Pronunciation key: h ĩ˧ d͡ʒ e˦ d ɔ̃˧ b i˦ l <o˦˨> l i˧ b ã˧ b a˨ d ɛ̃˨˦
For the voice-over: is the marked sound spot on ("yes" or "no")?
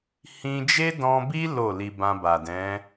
yes